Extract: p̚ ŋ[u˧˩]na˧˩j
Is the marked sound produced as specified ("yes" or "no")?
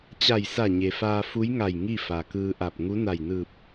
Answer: no